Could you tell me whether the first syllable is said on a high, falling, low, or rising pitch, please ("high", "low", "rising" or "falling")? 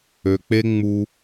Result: low